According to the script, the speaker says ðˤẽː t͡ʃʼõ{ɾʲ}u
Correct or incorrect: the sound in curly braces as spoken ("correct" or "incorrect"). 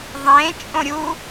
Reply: correct